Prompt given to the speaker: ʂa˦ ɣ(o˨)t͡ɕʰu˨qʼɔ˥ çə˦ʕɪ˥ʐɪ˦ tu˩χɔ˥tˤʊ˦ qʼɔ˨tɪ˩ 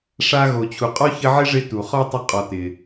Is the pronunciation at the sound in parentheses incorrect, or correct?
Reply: correct